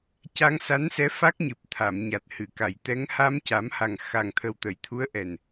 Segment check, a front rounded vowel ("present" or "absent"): absent